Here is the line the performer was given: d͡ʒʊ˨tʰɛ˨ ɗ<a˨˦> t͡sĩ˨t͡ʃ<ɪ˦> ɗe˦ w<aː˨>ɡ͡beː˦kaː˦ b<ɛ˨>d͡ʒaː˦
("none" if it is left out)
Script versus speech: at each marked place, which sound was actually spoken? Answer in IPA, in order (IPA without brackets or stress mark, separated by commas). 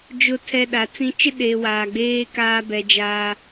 a˨˦, ɪ˦, aː˨, ɛ˨